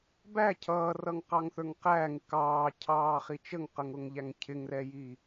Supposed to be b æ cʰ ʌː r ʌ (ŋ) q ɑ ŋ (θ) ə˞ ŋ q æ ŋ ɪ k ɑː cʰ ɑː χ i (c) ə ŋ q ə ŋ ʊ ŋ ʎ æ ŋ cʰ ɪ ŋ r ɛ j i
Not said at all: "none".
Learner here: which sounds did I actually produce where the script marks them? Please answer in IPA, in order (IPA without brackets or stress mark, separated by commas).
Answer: ŋ, θ, t͡ʃ